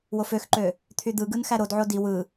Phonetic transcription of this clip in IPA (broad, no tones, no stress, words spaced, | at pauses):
woføxǃø | t̪ʰyd̪ɯɡɯn xæɾodʕo di wɯ